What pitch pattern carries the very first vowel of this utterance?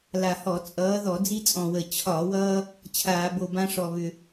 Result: low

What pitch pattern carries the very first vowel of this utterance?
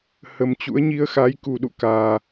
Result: low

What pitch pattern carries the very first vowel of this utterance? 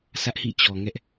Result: high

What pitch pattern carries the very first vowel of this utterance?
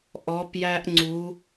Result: rising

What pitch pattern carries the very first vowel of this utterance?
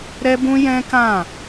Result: high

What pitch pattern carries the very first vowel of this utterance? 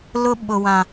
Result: high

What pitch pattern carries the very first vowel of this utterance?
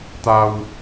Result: low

